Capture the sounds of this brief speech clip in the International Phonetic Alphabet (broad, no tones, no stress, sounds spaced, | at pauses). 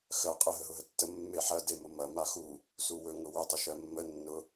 x ɜ qʼ ə ɦ ə ɦ ʊ ɦ ə tː ə mː e ħ ɐ d e m ʊ m ɐ m a x u | s u w ɵ ŋ ʊ w ɵ tˤ ə ʃ ɜ mː ə nː ʊ